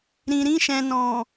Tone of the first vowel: low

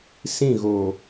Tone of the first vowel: falling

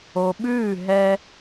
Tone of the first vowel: low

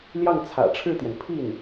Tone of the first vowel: falling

